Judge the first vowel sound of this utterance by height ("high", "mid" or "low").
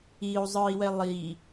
high